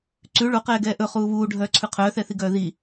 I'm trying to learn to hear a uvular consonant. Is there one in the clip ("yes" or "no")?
yes